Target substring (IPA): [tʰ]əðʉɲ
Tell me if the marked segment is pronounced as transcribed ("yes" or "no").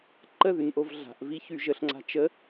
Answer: no